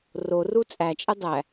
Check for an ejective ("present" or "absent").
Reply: present